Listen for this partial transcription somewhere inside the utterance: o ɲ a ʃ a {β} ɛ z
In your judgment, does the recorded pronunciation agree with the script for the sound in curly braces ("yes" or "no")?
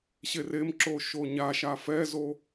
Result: no